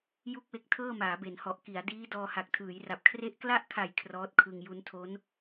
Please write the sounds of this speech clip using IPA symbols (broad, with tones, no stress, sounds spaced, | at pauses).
j u˥˩ k̚ w e˦˥ k̚ tʰ ɤː˥˩ m aː˩˦ b e˩˦ n h ɔ˨˩ ʔ k i˩˦ a̯ d iː˦˥ d ɔː˧ h a˨˩ k̚ tʰ ɯː˩˦ j r a˨˩ p̚ kʰ r e˦˥ ʔ k l a˥˩ ʔ kʰ a˨˩ j kʰ r ɔː˦˥ t̚ kʰ ɯ˧ ŋ j u˦˥ n tʰ o˦˥ n